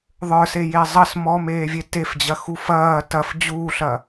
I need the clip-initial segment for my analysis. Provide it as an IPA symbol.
ðˤ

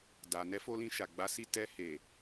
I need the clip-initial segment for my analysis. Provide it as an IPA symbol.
d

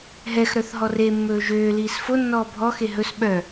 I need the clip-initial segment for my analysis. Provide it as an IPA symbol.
ɦ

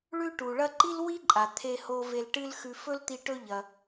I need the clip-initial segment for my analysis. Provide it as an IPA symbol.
ɭ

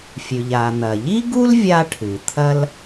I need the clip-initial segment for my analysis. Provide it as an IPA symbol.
fʲ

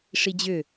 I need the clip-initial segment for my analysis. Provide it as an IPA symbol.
ʂ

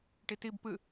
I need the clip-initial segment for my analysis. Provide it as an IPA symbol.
ʈ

